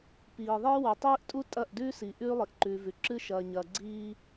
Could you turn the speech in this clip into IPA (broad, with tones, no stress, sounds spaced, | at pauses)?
p iː˨ ðˤ e˦ w ɐ˨ tˤ iː˦ ʔ tʼ u˦ tʼ ɐ˦˨ ʔ d ʉː˦ s i˨ ʔ ʉː˦ lˠ i˨ ʔ ǃ ʉː˨ v ʉ˨ ǁ ɨ˦ ʃ ɐː˨ ɲ ɐː˨ ɡ͡ǀ iː˦